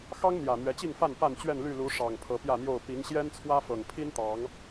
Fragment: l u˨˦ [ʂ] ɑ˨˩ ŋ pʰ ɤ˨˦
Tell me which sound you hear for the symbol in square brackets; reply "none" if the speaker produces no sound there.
ʂ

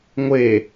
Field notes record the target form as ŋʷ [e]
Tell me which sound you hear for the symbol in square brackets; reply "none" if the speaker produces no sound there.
e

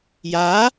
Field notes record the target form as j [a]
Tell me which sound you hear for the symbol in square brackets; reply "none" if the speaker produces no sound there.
a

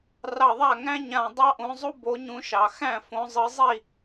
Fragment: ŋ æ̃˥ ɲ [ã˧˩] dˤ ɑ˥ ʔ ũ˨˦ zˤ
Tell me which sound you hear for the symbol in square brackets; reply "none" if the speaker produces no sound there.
ã˧˩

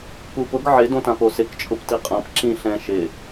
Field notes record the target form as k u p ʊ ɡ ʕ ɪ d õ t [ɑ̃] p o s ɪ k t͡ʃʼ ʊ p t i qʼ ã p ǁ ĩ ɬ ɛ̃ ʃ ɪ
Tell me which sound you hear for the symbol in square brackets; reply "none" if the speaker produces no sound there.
ã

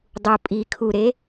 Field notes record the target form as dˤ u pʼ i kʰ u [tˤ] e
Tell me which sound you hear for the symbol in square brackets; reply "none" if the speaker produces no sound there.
ɾ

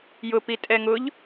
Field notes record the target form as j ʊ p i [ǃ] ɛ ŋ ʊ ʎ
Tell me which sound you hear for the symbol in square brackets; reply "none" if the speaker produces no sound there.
tʼ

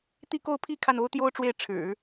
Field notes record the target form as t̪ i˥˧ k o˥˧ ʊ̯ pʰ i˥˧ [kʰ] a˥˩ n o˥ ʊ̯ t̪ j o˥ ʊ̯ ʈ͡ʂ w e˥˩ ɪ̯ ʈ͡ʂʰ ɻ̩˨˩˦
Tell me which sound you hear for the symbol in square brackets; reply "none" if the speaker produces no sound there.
kʰ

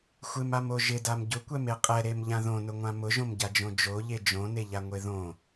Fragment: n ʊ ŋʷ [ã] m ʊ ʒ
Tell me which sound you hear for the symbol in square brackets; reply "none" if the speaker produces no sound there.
ã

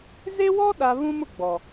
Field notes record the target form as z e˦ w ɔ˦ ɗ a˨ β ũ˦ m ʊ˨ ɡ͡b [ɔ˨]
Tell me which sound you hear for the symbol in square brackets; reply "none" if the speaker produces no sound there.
ɔ˨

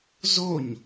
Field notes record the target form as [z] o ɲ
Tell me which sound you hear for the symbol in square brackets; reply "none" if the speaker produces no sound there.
z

